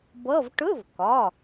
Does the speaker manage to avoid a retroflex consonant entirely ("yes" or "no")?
no